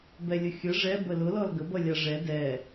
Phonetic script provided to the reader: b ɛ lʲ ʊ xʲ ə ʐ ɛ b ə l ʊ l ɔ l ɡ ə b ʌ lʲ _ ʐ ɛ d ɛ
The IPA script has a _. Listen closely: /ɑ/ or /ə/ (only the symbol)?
ɑ